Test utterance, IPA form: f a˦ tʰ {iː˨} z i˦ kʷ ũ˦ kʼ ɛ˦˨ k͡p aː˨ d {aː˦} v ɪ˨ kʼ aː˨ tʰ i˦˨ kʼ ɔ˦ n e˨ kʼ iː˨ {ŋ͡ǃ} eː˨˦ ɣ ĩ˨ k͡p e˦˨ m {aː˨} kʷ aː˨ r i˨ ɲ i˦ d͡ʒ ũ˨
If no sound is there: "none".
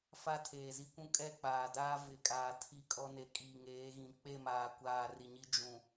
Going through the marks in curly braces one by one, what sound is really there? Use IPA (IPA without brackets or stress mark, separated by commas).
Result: eː˨, aː˦, ŋ, aː˨